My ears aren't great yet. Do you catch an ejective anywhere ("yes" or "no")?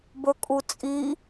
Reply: yes